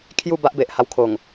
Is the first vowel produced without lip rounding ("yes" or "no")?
no